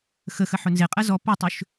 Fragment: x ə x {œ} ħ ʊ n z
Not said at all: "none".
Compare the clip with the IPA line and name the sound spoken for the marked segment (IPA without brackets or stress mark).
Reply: ə